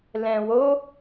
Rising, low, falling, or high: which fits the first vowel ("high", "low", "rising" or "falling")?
low